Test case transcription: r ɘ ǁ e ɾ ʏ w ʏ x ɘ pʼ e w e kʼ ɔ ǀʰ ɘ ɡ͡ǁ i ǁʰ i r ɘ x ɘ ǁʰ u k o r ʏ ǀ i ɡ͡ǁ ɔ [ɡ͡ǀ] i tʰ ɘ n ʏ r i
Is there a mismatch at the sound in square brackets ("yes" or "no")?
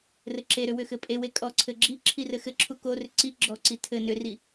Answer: yes